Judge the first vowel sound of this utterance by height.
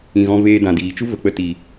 high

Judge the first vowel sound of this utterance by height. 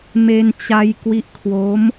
mid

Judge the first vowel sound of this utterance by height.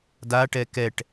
low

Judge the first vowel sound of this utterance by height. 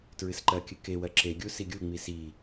high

